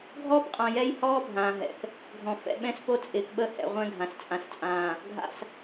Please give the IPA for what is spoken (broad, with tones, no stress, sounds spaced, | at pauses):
ɡʱ ɔː˦ p qʼ ã˨ j ɛ˦ j h ɔː˦ bʱ ãː˨ ɦ ɛ̰˨ k | ɡʱ ɔ̃˨ f ɛ̰˨ ɓ ɛ̃˦ s p o˦ t͡sʼ ɪː˨ k ɓ ə˦ h ɛ̰˨ ʁʷ ɛ̃˦ ɡʱ ã˨ s t͡sʼ ã˨ s t͡sʼ ãː˨ | ɡʱ a̰˨ s